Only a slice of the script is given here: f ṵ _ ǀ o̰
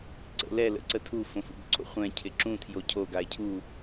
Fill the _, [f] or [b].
b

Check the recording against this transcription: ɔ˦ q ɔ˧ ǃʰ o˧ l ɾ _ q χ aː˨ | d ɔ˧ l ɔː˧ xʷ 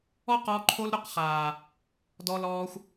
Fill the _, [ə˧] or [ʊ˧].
ʊ˧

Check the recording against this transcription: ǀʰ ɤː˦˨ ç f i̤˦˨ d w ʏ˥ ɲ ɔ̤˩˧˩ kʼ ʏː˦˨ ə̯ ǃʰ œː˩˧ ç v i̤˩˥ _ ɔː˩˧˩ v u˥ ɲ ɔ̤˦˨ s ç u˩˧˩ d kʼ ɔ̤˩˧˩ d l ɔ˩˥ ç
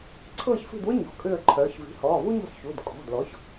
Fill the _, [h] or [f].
h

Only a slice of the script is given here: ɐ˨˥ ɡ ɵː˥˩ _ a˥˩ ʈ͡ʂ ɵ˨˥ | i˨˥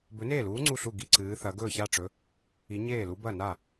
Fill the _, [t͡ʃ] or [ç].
ç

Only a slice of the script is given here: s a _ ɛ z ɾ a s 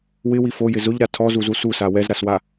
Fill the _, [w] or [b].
w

